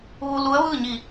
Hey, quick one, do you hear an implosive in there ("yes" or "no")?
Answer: no